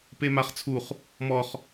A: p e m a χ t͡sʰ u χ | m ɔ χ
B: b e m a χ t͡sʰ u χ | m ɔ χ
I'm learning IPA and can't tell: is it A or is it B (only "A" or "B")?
A